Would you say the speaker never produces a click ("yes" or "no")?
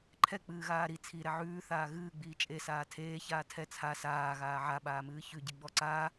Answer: no